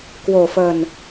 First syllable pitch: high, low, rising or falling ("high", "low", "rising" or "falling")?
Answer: low